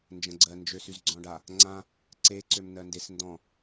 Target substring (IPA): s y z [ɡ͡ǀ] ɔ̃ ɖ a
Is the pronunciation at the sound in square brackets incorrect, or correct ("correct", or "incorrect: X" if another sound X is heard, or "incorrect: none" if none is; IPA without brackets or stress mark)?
correct